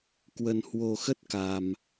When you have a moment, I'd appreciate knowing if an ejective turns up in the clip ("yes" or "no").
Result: no